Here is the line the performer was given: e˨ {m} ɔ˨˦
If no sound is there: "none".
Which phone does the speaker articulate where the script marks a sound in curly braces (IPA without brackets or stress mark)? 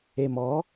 m